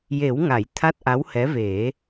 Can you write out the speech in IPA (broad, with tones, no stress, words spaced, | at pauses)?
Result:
je˨˩˦wŋa˨˩˨j t̪ʰa˦˥t̚ʔa˧˥whɛ˧˥ ve˨˩˦